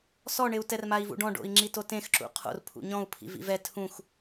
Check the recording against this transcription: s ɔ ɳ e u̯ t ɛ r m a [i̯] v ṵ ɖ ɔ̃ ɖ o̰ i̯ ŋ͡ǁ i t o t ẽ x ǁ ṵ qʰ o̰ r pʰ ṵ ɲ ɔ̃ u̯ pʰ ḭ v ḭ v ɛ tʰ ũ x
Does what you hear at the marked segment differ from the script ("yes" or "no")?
no